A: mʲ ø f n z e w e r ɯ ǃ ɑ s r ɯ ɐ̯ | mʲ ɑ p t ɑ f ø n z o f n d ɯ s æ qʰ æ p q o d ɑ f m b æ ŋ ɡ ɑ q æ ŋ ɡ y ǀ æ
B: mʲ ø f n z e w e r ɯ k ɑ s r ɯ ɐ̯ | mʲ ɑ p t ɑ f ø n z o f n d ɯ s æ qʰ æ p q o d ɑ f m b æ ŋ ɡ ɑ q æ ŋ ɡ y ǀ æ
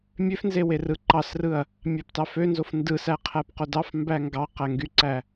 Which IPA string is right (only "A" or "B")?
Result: A